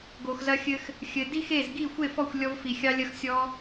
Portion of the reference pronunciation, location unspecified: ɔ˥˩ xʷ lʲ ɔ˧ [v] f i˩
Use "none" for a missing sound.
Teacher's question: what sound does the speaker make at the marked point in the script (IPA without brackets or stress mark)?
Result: v